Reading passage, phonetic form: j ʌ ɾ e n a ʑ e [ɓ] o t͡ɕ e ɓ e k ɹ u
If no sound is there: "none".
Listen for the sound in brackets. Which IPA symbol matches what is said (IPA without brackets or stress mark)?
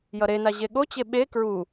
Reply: ɠ